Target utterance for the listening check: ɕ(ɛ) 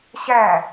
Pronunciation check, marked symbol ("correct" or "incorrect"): incorrect